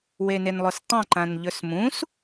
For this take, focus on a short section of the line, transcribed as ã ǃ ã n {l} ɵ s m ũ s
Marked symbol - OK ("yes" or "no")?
no